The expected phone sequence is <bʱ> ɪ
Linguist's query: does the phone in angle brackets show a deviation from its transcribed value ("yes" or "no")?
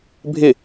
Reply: no